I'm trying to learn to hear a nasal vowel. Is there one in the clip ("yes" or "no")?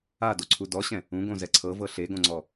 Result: yes